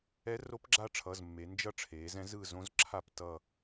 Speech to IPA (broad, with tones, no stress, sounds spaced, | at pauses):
ɛ˧˥ r o˧˥ p ɡ͡ǁ a˦˨ ʈ͡ʂʰ ʌ˩˧˩ z mː e˩˧ n d͡ʒ ʌ˦˨ ʈ͡ʂʰ eː˩˧ z ɛ̃˧˥ z ɯː˦˨ z õ˧˥ z ǁʰ a˦˨ p t ʌ˦˨